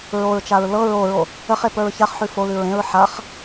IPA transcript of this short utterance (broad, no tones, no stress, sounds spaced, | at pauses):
ɹ o ɹ t͡ʃ a ɹ l ɤ ɹ o ɹ o | ə χ e p ə˞ ɹ ç a χ ħ ʉ f o l ʉ ɹ ẽ ɹ ħ a χ